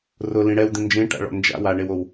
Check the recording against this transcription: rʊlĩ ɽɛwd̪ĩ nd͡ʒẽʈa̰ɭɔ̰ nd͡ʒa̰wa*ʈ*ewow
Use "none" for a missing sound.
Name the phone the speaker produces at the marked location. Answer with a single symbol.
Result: ɳ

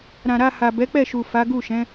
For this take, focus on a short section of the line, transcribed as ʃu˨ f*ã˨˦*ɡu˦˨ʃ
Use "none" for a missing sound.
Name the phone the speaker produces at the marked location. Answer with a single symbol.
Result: a˨˦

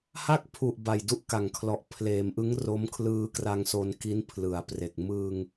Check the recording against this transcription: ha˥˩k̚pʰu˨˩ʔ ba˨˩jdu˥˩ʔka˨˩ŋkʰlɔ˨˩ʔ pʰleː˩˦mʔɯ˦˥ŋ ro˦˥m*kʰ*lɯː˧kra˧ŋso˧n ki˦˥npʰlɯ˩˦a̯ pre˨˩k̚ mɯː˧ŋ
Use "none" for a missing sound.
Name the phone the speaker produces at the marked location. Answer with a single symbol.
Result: kʰ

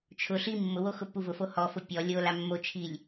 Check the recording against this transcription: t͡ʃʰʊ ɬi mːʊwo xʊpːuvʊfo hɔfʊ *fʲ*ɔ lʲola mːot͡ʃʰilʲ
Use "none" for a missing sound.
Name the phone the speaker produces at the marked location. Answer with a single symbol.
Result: pʲ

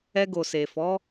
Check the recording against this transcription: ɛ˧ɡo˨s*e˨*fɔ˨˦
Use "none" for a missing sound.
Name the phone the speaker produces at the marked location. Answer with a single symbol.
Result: e˨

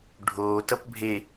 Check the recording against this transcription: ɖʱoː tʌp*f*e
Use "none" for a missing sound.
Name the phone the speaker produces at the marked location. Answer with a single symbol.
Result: bʱ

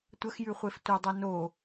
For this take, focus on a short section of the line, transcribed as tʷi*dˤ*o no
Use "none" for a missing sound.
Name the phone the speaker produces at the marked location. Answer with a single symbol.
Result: dˤ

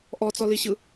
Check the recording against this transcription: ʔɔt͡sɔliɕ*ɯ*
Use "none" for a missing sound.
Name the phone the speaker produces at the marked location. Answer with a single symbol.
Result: ɯ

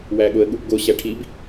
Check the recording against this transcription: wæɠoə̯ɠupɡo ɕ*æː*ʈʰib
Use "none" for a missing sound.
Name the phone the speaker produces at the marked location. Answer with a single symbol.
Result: æ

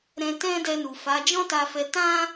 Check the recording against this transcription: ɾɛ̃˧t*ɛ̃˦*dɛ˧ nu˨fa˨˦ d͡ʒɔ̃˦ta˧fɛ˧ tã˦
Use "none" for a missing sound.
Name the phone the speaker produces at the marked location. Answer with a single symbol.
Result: ɛ̃˦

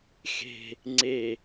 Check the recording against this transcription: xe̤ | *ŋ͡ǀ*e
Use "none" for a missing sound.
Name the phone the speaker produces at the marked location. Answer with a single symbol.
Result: ŋ͡ǀ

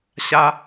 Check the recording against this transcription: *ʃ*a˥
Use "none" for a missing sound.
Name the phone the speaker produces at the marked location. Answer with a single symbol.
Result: ɕ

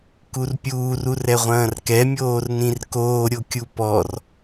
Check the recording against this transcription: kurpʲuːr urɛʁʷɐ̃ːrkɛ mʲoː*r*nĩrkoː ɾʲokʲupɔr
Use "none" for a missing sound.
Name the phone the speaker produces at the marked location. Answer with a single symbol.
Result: r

